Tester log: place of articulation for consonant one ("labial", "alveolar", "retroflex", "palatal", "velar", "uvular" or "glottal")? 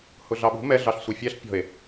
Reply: glottal